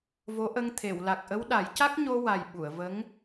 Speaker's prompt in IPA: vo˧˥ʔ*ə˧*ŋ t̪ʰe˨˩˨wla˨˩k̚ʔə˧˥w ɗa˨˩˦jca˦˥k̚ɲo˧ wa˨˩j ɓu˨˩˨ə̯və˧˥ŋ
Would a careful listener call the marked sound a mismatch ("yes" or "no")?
no